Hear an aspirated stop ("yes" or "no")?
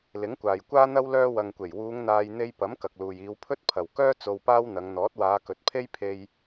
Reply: yes